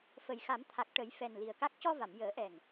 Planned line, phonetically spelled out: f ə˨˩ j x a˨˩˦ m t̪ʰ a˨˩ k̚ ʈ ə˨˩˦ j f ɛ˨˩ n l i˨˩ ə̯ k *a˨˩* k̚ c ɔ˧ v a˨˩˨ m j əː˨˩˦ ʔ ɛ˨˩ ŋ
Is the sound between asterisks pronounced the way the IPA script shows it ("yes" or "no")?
no